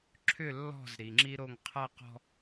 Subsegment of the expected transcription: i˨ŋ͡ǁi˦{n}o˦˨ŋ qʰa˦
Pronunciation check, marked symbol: incorrect: ɾ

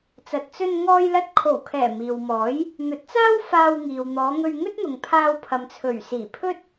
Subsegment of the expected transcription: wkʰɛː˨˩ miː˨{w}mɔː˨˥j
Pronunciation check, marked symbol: correct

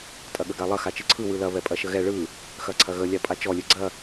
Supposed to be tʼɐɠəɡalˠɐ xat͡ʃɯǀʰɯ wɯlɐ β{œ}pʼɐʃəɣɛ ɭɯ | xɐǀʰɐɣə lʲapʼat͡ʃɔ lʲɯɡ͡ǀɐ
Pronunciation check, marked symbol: incorrect: ɛ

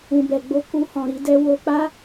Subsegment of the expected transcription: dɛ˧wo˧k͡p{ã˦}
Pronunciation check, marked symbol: incorrect: a˦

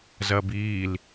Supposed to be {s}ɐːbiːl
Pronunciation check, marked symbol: incorrect: z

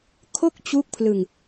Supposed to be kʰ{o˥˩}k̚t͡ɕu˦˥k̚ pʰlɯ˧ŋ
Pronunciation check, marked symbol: correct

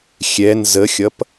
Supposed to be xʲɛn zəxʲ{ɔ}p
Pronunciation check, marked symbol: incorrect: ʌ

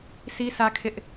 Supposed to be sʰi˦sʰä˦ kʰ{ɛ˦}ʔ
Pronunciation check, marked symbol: incorrect: ɪ˦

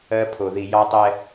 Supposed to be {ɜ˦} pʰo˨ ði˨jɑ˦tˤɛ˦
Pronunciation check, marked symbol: correct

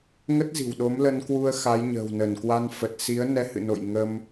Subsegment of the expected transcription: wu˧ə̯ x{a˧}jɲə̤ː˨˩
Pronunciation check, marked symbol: incorrect: a˨˦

